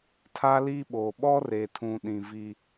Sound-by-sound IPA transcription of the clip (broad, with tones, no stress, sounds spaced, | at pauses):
tʰ a˦ l iː˦ ɓ oː˨ ɓ ɔ˦ r e˨ tʰ ũ˨ ɗ ĩ˨ v i˦